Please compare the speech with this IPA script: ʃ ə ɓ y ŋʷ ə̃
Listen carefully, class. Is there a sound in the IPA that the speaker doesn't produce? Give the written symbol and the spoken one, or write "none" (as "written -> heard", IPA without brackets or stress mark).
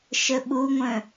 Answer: y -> u